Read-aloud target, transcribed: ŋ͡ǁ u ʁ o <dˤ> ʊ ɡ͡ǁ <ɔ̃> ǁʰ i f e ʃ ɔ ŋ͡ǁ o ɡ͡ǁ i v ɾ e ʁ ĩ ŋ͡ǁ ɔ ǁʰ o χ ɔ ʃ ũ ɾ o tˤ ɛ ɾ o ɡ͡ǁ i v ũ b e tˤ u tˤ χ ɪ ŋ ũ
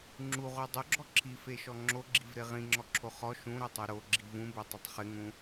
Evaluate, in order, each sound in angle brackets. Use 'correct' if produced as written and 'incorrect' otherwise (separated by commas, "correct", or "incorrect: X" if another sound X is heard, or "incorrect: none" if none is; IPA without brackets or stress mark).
correct, incorrect: ɔ